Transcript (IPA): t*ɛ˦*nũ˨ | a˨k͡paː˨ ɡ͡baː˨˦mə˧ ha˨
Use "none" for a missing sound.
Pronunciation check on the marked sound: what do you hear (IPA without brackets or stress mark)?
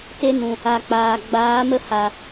e˦